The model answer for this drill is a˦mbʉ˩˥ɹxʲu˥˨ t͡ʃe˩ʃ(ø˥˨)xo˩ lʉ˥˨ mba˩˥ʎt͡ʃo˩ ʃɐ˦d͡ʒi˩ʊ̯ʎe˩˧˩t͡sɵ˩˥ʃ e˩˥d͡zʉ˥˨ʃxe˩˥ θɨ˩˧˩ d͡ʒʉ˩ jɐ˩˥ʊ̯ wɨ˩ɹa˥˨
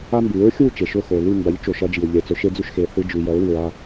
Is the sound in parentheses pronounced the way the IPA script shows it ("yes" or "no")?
no